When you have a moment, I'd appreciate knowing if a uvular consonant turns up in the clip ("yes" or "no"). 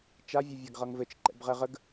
yes